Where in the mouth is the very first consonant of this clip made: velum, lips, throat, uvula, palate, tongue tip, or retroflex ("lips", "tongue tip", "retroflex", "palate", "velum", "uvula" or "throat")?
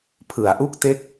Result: lips